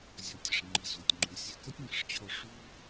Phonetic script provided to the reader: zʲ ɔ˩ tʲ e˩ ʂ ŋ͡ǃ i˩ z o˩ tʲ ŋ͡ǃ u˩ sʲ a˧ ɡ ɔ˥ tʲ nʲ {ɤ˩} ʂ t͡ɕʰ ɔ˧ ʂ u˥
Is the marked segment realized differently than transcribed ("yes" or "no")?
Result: no